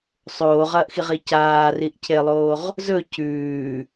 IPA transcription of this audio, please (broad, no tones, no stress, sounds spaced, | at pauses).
sˤ oː ʁ ɐː ʔ x i ʁ i c aː r i ʔ cʰ e lˠ oː ʁ | z ɵ c ʉː